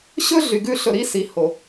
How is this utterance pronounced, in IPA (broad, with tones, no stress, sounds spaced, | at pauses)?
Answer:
ɕ ɵ˦ ɮ y˨ ɡ ʉ˦ ɬ ɵ˧ ɾ i˦ s i˨ h o˨